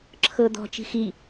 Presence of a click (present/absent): present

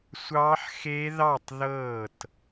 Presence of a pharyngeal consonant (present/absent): present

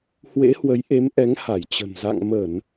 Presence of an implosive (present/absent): absent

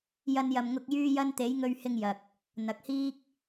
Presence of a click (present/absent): absent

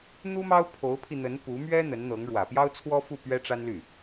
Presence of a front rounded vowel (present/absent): present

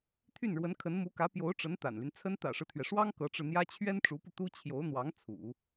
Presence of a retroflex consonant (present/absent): present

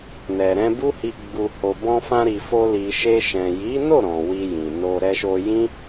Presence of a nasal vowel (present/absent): present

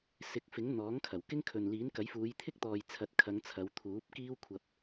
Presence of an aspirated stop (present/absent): present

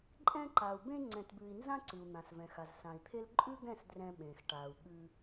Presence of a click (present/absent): present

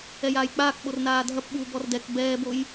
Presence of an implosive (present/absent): present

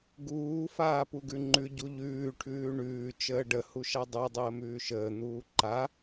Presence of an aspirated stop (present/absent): present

